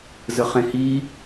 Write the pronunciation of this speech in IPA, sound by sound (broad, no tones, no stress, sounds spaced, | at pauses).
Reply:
z ə χ ẽ h i